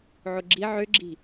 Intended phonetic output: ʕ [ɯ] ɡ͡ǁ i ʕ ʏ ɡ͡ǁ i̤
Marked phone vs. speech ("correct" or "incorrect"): incorrect